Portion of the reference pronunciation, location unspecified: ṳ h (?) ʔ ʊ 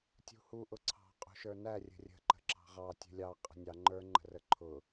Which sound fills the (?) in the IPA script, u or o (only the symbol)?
u